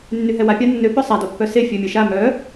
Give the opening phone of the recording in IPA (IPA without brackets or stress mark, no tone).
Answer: nː